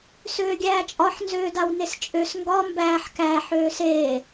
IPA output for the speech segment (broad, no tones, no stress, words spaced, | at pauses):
søːɡʲæːt͡ʃʼɒħ nzøːdawnest͡ʃʼøs ŋɡɒ mbæːħ kæ ħøːseː